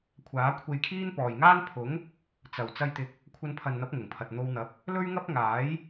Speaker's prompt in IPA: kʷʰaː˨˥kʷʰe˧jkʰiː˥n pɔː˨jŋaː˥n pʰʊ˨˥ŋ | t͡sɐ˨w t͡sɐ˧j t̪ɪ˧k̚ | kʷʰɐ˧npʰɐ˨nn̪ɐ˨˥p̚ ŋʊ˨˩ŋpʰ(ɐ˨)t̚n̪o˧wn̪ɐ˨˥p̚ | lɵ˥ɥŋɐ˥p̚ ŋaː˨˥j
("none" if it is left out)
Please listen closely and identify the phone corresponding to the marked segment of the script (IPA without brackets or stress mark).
ɐ˨